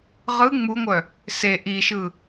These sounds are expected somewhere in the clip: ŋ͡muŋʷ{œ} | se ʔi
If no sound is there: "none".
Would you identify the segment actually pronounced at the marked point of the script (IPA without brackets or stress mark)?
œ